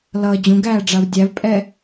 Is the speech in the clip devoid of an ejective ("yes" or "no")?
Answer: no